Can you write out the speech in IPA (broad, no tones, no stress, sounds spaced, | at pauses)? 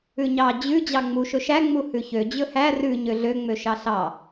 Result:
ʉ ɲ ɑ d͡ʑ ʉ d͡ʑ ɑ ŋ͡m u ʃ ɵ ʃ æ ŋ͡m u h ʉ ç ø d͡ʑ ɵ h æ r ʉ ɲ ø ɮ ø ŋ͡m ø ʃ ɑ ɬ ɑ